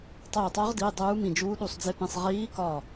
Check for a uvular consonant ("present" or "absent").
present